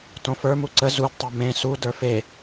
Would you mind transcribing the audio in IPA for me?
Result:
t õ f ə˞ m u ǀ ə z u d tˤ ə˞ m ẽ s u d ə˞ f e

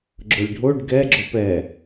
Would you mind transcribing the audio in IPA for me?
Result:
ɡ͡ǁ ʊ lʲ ɖʱ o ɖ ɡ ɛ ɡ͡ǁ o p ɛ

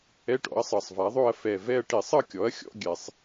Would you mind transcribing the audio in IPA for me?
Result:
ɛ˧˥˧ ʈ ɔ̰˩˥ ɐ̯ sˤ ɤ˨˩ sˤ v a˩˥ ðˤ o˥˨ ɐ̯ f ɛ˨˩ v ɛ˥˨ ɐ̯ ʈ i˧˩˧ sˤ ɤ˥˨ kʲ ɔ˩˥ ɐ̯ xʲ ɔ̰˧˥˧ ɡʲ ɛ˧˩˧ sˤ

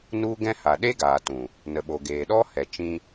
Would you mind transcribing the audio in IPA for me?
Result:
n u˦ ɡ ɛ̃˦ h a˨ ɗ e˦ ɡ aː˨ t ũ˨ | n ə˨ ɓ o˨ ɡ eː˨ ɗ ɔ˦ h ɛ˨ t͡ʃ ĩ˧

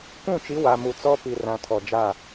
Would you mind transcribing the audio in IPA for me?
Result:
kʷ ũ˦˨ t͡ʃ i˨˦ w a˨ m u˨ t͡s ɔ˦ p i˨ r ã˨ tʰ ɔ˨ d͡ʒ a˦˨

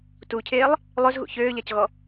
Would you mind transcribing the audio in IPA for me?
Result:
t u cʰ eː lˠ | lˠ ø z ɣ ṵ ç øː ʎ a c ɣ ɔ

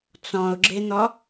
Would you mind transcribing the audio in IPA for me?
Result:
t͡s ɔ̃ ʊ̯ ɡ͡ǁ e n̪ ɔ

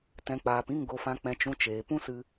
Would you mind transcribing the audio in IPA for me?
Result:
t ɛ̃˨ k͡p aː˨ p ĩ˦˨ ŋ ɡ o˨ f ã˨ k͡p ɛ̃˨ t͡ʃ ũ˨ t͡ʃ eː˨ p ũ˦ s ɨ˧

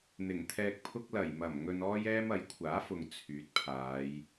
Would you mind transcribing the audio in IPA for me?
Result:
n̪ ɪ˨˩ ŋ t̪ʰ ɛː˧ k̚ pʰ ʊ˥ k̚ l ɐ˨˩ j m ɐ˨˩ m ŋ ɵ˧ n ɔː˥ j ɛː˥ m ɐ˨˥ j kʷʰ aː˨˥ f ʊ˨ ŋ t͡sʰ yː˨˥ t̚ pʰ aː˨˧ j

